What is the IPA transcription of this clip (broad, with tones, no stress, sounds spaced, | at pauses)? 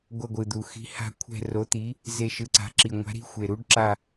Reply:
ɡʷ ʌ˦˨ ɡʷ ɯ˨˩ d̪ u˨˩ x i̤˨˥ h a̤˦˨ kʷʰ ɛ̤˦˨ r o˨˥ t̪ i˨˥ | z e˦˨ ʃ ɯ˨˥ ǀ a̤˨˥ ǁ i˨˩ ŋʷ a̤˨˥ ɾ i̤˨˥ xʷ e˨˩ ɾ u˨˥ ɖ ǁ a˦˨